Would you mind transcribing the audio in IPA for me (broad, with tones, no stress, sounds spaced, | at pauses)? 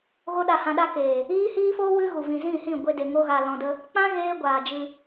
ɣ o˦ ɗ a˧ h ã˧ ɗ a˦ k eː˨ | iː˦ h iː˦ f oː˦ w ɨ˦ ɣ u˨ v ĩ˨ z ĩ˦˨ h ĩ˦˨ ɡʷ e˧ d e˨ ŋ o˧ ɣ a˨ l ɔ̃˨ d ə˧ | k͡p ã˦ ɣ eː˦ ɡʷ aː˨ d͡ʒ ɨ˧